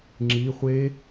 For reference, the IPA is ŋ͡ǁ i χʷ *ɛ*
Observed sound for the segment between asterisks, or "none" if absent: e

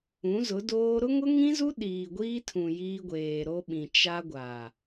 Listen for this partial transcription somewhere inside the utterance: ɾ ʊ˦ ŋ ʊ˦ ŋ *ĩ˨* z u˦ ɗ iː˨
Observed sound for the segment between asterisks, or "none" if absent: ĩ˦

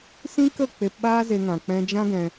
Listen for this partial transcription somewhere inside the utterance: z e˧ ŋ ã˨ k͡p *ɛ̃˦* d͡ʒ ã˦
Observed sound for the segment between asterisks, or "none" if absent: ɛ̃˧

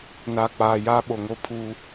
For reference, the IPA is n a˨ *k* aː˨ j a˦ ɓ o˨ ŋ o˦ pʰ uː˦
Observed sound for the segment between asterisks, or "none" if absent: k͡p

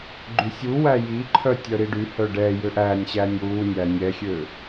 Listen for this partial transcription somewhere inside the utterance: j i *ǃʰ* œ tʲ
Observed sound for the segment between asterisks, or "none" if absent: ǃʰ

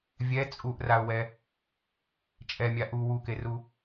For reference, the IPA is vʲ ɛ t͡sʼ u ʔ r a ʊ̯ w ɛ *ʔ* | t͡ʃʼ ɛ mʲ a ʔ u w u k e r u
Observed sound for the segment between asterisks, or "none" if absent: none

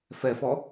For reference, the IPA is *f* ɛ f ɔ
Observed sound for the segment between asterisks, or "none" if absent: f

